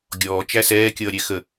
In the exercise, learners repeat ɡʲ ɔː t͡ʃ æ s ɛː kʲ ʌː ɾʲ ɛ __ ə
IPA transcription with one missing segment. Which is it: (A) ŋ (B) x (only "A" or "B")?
B